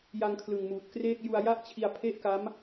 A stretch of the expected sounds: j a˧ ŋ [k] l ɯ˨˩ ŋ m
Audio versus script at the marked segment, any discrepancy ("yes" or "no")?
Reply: yes